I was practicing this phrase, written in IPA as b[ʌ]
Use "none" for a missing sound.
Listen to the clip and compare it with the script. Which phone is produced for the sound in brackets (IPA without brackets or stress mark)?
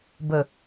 ə